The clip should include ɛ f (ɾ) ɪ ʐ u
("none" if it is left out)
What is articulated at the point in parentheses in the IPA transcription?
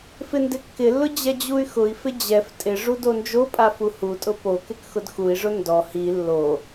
tʼ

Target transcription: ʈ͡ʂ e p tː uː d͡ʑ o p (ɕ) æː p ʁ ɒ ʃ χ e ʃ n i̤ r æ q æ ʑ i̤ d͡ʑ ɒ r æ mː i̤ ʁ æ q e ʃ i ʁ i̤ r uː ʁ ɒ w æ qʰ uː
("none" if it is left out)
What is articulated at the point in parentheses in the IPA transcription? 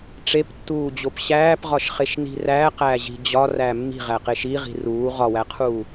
ɕ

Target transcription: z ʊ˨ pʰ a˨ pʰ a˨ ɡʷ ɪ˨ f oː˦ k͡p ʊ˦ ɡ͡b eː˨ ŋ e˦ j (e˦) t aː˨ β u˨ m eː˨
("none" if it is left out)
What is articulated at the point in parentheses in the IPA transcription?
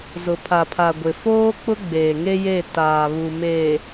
e˦˨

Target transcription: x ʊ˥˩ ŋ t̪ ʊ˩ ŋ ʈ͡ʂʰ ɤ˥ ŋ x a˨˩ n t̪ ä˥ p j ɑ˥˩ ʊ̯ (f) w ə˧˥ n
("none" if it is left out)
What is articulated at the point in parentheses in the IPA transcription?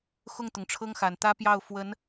f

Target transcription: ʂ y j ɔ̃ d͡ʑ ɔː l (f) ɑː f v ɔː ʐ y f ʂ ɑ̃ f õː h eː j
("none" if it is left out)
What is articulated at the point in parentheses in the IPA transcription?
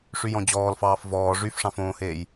f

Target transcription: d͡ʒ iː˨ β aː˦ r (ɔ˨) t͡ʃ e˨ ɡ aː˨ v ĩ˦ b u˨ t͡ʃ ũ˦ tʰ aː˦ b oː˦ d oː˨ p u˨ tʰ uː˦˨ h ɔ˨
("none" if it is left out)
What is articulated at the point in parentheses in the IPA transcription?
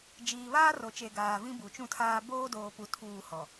o˨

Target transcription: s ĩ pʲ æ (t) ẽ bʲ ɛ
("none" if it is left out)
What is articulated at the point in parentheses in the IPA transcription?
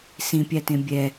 t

